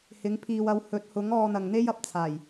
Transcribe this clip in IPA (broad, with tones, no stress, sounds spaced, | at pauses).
h ɪ˨˧ ŋ pʰ iː˨ w ɐ˨˧ w h ɵ˨˥ t̚ h ʊ˨˥ ŋ ɔː˧ n̪ ɐ˨ ŋ n̪ e˥ j ɐ˨ p̚ t͡sʰ aː˨˩ j